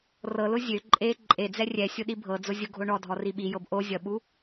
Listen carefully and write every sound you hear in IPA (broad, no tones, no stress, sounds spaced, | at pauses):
r ɤ l ʊ zʲ ø ǃʼ e ǃʼ e d͡z ɛ rʲ ɛ sʲ ʊ ɗ i bʱ ɤ d͡z ʊ zʲ ʊ ɡʱ o ɳ ɔ dʱ ɔ r i ɓ i j ɤ b ʔ o zʲ ʌ ɓ u